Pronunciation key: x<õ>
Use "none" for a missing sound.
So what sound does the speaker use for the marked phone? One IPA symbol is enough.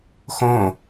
õ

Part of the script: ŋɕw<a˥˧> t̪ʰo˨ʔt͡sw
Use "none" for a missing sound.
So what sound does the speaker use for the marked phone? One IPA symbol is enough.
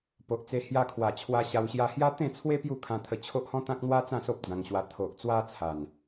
a˧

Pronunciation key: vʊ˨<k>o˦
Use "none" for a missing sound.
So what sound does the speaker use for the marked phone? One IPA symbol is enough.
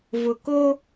k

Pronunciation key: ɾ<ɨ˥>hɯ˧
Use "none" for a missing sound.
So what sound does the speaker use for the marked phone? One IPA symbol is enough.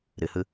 ɨ˩˧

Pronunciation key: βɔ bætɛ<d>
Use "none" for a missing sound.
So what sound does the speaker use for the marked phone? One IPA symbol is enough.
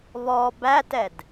d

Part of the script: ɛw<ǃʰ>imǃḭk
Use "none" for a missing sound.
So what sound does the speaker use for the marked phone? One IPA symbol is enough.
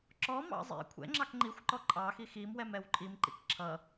ǃʼ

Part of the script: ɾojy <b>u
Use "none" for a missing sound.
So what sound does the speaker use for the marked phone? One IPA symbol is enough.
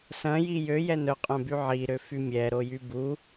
b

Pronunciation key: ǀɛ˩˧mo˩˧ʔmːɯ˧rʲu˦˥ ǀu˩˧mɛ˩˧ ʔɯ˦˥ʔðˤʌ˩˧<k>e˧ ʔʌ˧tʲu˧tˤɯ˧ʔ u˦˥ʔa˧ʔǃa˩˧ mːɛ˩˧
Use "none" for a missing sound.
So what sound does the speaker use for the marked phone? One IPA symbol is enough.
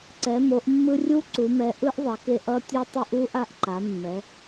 k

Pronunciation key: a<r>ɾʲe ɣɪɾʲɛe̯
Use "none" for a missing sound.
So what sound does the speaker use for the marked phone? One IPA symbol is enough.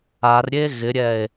r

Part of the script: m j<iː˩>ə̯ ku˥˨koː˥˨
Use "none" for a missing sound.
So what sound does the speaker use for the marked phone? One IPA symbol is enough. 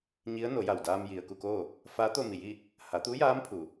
i˩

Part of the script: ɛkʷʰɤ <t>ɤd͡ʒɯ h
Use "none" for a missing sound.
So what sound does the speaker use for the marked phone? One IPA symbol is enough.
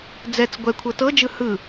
t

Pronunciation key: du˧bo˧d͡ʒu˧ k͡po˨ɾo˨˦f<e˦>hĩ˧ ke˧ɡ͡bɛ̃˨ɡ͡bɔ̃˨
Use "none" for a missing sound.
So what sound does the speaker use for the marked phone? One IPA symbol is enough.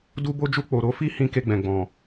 i˦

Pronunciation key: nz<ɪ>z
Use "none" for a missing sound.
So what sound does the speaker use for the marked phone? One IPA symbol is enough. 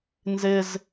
ɪ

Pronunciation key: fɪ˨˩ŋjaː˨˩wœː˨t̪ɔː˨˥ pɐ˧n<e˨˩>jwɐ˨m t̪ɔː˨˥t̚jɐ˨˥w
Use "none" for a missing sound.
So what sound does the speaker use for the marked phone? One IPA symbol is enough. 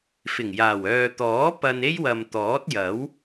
e˥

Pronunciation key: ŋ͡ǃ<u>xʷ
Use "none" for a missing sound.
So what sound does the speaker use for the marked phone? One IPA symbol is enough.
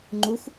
u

